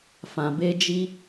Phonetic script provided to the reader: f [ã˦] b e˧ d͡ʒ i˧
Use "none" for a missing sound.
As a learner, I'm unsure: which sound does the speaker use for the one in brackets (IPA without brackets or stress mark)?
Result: ã˨